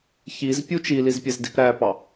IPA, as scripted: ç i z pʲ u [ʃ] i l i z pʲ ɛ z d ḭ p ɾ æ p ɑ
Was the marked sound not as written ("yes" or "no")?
yes